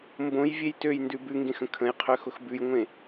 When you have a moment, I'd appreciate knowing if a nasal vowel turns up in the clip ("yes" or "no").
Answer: yes